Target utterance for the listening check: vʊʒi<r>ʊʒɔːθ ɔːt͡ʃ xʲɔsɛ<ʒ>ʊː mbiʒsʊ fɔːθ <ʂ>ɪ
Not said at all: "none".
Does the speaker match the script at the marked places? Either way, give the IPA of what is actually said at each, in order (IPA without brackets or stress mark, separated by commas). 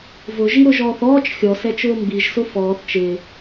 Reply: ɾ, t͡ʃ, t͡ʃ